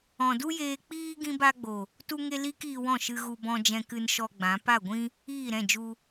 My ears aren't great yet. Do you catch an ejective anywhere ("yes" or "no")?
no